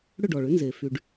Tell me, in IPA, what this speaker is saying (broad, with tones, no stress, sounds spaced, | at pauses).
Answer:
ɽ ʏ˥˩ ɖ ɔ˩ ɭ ʏ˩˥ n z e˩ f y˩ ɖ